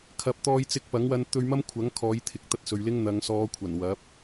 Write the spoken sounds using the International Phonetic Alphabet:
kʰ ɐ˧ p̚ t̪ ɔː˧ j t͡s ɪ˧ k̚ p ɐ˨˥ ŋ w ɐ˧ n t̪ ɵ˧ ɥ m ɐ˥ m kʷʰ ɐ˨˥ ŋ kʰ ɔː˨˧ j t̪ʰ ɪ˨˥ k̚ t̪ ɐ˧ t̚ s ɵ˨ ɥ l ɪ˥ ŋ n̪ ɐ˨˧ ŋ s ɔː˨˧ kʷʰ ɐ˨˩ n w ɐ˨˥ p̚

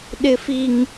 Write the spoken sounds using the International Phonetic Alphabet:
ɗ ɪ˦ f i˦ ŋ

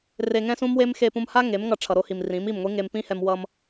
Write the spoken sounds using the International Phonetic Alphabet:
r e˧ ŋ ɛ̃˦ s ũ˦ m w e˦ m x e˧ p ũ˧ m h a˦ ŋ e˨˦ m ŋ ʌ˧ ʈ͡ʂʰ ʌ˨ ɾ o˧ h i˨ m r ĩ˨˦ m i˦˨ m ŋʷ i˦ ŋ e˧ m p ĩ˦ h ɛ˧ m w ʌ˧ m

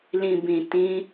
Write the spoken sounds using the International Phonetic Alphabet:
l ĩ˨ b ĩ˨ t ĩ˧

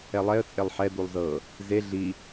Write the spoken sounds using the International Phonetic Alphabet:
ɛ lˠ ɛ ə̯ t͡sʼ e lˠ ħ ɛ d̪ u lˠ z ɤ | z e ɮ i

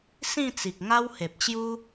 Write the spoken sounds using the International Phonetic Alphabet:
s ĩ˥˧ t͡s i˨ k̚ ŋ a˦ w h e˨ p̚ t͡ɕ j u˦

